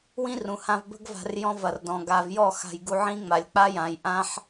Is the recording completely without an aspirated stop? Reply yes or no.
yes